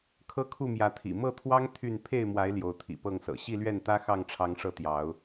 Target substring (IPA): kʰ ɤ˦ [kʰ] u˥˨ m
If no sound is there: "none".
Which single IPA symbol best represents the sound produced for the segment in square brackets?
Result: kʰ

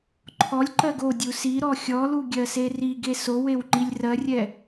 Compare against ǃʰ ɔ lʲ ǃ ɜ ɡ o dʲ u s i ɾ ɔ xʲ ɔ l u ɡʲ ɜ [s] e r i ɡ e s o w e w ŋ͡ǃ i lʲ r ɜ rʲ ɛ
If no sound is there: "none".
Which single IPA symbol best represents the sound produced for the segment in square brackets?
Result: s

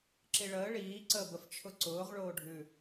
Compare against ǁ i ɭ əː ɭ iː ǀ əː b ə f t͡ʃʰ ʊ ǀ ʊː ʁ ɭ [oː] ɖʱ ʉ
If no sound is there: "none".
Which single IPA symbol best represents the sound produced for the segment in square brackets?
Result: oː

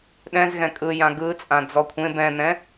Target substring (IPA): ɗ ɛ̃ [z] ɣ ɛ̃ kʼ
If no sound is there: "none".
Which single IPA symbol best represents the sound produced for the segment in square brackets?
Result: z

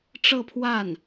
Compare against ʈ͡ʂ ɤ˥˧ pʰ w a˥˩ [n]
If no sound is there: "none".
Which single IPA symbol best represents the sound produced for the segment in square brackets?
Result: n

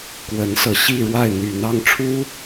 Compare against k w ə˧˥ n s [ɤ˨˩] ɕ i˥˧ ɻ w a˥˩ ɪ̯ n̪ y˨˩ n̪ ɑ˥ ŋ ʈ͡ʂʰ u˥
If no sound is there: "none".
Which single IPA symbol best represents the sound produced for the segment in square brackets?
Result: ɤ˨˩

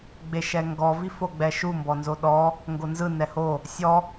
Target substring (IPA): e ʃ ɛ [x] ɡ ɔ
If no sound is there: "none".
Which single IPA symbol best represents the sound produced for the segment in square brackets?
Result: ŋ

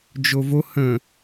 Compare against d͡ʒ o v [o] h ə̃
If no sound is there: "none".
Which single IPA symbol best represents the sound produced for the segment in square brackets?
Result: o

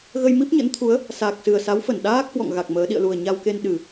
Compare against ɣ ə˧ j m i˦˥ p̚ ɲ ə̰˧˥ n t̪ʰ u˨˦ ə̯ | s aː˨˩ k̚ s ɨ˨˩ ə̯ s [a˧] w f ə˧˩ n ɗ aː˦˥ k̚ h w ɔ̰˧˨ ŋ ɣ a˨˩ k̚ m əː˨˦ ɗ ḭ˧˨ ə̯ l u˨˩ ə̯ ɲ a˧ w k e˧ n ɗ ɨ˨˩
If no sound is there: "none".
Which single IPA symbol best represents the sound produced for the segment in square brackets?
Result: a˨˦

